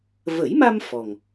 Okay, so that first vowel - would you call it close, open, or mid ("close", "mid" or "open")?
mid